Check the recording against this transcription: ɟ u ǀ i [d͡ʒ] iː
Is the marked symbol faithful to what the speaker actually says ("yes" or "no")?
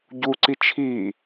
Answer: no